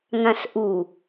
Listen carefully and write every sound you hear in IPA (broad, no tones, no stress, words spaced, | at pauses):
ŋãsʔu